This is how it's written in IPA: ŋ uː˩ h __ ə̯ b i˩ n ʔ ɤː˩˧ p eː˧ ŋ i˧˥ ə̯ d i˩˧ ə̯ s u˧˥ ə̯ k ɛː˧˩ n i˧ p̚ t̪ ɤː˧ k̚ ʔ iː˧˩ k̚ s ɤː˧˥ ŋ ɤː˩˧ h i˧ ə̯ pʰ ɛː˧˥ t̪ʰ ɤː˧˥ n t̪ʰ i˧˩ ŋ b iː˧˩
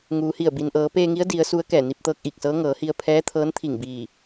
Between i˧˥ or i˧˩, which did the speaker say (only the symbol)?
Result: i˧˩